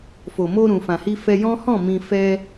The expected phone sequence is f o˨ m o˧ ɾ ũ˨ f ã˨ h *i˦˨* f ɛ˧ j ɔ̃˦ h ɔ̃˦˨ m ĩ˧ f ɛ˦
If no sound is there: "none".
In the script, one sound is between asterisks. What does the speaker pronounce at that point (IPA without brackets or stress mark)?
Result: i˧